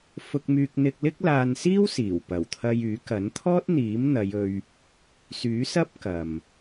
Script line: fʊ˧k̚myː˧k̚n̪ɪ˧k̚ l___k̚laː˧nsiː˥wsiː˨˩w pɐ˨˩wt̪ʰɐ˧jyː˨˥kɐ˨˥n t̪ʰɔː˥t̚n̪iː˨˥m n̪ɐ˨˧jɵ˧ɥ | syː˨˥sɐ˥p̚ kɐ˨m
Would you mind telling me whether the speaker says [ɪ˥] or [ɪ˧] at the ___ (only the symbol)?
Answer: ɪ˥